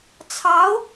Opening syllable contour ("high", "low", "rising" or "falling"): rising